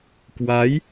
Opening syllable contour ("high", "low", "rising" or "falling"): rising